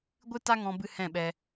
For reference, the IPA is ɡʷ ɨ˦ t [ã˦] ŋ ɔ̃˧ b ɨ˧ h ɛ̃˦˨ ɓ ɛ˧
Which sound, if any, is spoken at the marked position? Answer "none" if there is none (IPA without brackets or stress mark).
a˦